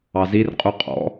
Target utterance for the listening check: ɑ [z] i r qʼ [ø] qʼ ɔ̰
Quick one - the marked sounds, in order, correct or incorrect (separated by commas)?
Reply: correct, incorrect